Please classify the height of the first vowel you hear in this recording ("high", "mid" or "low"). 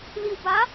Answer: high